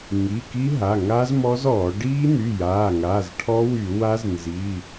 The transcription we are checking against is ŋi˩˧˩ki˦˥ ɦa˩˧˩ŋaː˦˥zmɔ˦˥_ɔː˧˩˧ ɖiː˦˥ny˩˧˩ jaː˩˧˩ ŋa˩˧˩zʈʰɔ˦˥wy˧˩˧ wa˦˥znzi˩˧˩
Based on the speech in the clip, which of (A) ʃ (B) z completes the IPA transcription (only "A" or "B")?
B